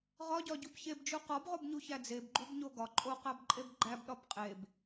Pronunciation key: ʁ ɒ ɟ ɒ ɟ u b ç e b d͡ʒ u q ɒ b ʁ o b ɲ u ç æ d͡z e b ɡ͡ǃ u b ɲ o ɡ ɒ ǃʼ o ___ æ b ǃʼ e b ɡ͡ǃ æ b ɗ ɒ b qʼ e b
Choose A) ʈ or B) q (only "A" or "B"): B